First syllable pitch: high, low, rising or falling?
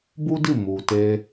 high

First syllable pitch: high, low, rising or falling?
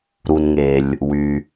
low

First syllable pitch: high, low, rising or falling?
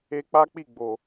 high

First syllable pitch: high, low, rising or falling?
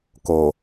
low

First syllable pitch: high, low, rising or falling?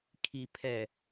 low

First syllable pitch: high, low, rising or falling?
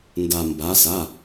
low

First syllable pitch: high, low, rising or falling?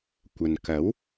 low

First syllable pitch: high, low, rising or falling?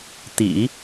low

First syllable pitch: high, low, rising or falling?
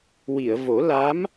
low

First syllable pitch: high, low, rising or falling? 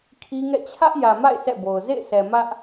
high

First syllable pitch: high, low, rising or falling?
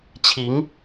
rising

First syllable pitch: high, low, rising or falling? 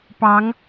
rising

